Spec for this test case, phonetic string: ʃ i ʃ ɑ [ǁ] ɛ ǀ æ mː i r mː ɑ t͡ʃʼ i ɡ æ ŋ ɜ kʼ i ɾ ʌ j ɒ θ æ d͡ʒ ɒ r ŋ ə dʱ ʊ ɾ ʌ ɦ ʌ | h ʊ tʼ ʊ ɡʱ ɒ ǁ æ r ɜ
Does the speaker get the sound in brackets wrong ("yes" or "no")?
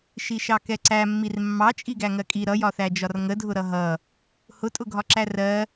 yes